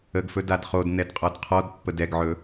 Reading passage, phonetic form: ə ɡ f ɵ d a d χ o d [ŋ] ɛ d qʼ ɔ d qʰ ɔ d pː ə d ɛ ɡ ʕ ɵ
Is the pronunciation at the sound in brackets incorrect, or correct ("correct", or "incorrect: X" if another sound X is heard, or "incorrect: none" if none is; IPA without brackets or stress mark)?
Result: incorrect: n